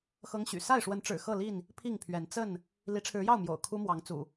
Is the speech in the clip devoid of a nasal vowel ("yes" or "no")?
yes